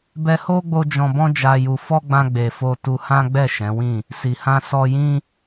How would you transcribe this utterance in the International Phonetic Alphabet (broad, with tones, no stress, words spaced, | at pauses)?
bɛ˧ho˦ɡ͡bo˧ d͡ʒɔ̃˧bɔ̃˦d͡ʒa˧ju˧ fɔ˦ɡ͡bã˧ɡ͡be˨ fo˧tu˧ hã˦ɡ͡bɛ˦˨ ʃɛ̃˨˦wĩ˦˨ | si˨hã˧ sɔ˧jĩ˦